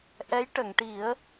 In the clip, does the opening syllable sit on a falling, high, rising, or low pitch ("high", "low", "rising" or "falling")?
rising